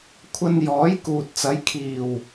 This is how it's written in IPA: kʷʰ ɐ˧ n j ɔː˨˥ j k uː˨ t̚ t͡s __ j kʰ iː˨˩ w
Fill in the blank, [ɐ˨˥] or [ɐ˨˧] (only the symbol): ɐ˨˥